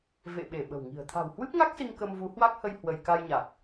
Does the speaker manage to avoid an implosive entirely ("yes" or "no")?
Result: no